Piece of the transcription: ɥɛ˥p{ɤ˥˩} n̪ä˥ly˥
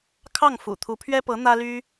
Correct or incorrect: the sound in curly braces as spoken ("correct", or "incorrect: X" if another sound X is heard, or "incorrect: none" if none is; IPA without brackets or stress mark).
incorrect: ɤ˧˥